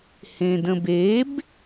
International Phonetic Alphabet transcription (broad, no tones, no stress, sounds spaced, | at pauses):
h ẽ d ə̃ b e b